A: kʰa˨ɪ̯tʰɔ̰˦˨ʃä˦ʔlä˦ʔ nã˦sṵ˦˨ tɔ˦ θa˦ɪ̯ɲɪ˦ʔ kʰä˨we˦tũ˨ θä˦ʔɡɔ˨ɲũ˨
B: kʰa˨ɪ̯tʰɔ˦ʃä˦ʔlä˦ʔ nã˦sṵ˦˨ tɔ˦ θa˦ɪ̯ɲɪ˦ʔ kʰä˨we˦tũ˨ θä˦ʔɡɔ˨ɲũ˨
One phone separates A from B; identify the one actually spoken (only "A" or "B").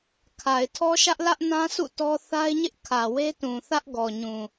B